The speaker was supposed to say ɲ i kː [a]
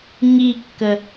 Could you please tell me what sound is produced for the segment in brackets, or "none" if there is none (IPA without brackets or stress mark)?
ə